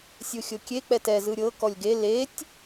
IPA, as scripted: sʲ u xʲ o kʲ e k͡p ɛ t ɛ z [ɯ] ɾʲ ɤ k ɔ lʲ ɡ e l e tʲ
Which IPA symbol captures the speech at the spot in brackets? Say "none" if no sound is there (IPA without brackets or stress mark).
ɯ